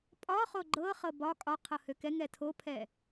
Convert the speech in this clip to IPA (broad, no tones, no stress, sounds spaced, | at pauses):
pʼ ɒ χ o ɡ͡ǃ ɤ χ ɤ b ɒ kʼ ɒ qʰ ɤ h ø k ɛ ŋ ɛ tʰ o pʰ ɛ